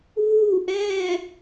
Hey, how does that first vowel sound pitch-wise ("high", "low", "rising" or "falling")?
falling